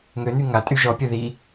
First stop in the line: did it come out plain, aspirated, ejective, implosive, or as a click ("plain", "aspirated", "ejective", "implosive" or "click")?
ejective